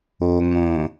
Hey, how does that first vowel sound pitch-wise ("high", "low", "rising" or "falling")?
low